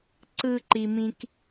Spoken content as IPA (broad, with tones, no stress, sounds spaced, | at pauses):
ǀ ɯ˥ ǃ i˦ m ĩ˥ k